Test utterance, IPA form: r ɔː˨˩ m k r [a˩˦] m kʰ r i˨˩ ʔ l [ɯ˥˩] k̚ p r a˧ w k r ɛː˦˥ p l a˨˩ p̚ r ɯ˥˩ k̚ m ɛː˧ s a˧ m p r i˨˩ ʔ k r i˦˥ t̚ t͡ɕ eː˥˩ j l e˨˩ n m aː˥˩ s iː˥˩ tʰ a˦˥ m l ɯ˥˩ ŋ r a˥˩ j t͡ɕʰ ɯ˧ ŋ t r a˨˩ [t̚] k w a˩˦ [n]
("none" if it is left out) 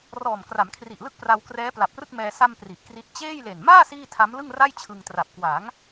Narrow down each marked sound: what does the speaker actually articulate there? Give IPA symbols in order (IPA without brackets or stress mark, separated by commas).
a˩˦, ɯ˥˩, p̚, ŋ